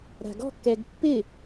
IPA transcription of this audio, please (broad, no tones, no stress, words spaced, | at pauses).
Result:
ɾa̤ɡɔ̤kːɛɡ pːɪ